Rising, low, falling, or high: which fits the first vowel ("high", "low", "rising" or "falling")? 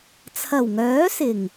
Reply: low